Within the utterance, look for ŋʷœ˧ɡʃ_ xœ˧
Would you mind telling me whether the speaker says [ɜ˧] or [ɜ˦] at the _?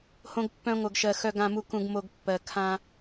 ɜ˧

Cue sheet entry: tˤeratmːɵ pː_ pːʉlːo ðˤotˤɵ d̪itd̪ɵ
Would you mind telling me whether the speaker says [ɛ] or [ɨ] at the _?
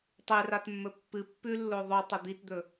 ɨ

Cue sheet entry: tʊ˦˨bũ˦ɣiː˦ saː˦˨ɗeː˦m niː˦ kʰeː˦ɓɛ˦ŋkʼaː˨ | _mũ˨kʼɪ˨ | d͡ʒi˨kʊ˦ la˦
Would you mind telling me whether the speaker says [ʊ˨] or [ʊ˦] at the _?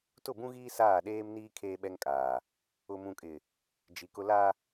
ʊ˨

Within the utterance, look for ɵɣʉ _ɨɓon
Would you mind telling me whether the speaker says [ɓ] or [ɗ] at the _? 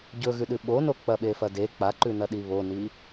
ɗ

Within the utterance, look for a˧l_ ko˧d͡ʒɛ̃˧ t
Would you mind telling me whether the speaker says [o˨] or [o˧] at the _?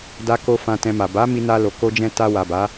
o˨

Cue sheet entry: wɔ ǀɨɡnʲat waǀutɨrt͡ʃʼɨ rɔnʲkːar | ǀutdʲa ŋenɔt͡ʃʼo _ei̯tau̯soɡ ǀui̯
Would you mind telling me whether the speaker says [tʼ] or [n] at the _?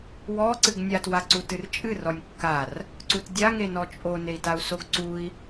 n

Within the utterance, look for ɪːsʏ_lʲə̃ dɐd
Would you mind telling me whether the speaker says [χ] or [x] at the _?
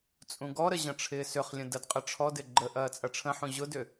χ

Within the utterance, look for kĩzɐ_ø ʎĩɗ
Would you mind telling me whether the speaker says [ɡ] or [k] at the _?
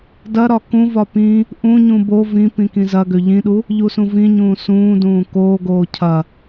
ɡ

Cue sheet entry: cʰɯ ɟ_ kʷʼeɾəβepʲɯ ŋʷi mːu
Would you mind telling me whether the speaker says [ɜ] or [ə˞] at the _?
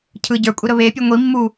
ə˞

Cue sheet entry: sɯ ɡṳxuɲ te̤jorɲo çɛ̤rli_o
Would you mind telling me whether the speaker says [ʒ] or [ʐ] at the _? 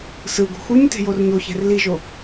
ʒ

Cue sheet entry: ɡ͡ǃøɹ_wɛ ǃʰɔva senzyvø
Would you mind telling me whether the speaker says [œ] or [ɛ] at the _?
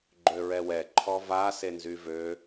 ɛ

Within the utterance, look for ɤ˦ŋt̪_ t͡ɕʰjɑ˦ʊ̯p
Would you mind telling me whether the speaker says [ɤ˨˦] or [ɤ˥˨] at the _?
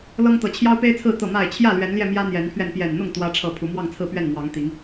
ɤ˨˦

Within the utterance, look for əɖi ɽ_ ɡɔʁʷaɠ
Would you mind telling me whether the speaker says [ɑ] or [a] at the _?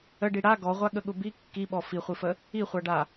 a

